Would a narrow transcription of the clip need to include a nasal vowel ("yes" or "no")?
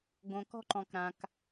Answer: yes